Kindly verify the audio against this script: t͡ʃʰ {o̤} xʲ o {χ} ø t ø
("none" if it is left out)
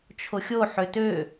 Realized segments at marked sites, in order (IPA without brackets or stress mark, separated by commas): o, ħ